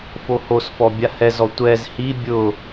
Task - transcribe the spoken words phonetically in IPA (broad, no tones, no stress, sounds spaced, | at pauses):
f o h o s f ɔ bʲ a h ɛ z ɔ tʷ ɛ z h i bʲ ʊ